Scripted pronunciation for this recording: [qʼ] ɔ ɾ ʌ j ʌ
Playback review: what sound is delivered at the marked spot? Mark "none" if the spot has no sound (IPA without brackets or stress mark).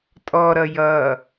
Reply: tʼ